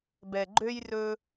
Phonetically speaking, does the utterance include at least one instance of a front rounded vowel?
yes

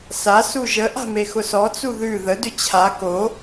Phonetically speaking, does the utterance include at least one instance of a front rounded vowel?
yes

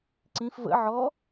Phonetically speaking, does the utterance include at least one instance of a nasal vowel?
yes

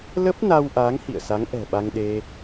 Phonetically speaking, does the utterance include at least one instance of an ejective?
no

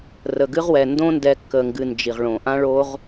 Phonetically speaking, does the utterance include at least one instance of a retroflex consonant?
yes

